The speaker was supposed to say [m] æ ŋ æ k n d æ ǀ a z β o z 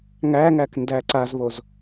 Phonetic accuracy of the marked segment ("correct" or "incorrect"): incorrect